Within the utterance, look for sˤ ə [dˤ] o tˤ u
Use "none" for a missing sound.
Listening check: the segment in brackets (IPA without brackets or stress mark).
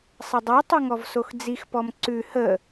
dˤ